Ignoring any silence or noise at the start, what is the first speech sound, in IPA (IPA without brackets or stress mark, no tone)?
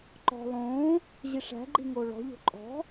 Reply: ǃ